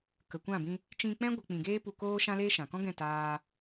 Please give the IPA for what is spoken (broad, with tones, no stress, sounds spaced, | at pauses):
k ə˨ kʷ ã˦˨ b ĩ˧ | t͡ʃ ĩ˧ k͡p ɛ̃˦ ɡʷ ə˧ k͡p ĩ˨ ɡ eː˦ p u˧ k oː˦ ʃ ã˦ l eː˦ ʃ ã˨ k ɔ̃˦ ɡ ɛ̃˦˨ t aː˧